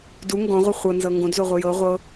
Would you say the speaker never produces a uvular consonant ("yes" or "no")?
no